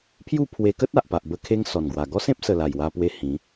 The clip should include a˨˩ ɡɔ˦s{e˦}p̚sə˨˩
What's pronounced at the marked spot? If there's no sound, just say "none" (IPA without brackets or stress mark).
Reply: ẽ˦